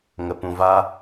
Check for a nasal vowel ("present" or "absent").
present